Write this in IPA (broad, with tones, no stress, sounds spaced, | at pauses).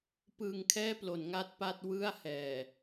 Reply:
p ɯː˧ ŋ kʰ ɛː˥˩ p l o˩˦ n ŋ a˥˩ t̚ p a˥˩ t̚ w ɯ˥˩ a̯ h ɛː˨˩